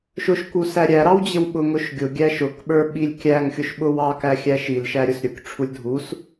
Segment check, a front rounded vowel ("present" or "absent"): absent